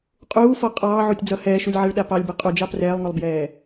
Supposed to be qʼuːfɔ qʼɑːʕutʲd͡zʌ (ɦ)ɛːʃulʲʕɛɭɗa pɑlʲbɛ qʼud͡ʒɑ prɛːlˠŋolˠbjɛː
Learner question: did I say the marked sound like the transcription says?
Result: no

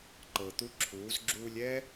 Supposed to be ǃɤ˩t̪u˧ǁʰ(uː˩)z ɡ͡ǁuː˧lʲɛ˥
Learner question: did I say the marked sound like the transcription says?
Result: no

